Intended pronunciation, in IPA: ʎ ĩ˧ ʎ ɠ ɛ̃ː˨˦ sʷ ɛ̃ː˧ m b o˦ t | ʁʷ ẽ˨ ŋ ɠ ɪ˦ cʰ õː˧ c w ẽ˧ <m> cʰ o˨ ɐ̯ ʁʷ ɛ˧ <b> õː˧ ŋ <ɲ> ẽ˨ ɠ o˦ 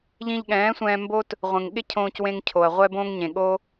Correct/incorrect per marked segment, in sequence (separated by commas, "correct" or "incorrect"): incorrect, correct, correct